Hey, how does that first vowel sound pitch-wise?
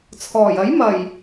low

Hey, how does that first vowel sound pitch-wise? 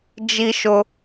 high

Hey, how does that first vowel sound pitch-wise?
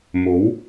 rising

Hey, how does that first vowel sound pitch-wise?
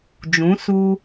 rising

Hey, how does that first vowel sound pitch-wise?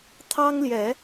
high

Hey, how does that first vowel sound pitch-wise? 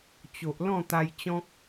low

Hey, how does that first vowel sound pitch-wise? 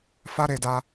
high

